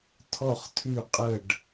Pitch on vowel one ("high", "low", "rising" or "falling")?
falling